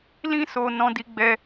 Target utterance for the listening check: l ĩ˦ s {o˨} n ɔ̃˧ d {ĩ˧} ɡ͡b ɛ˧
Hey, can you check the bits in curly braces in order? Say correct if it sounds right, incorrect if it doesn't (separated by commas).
incorrect, incorrect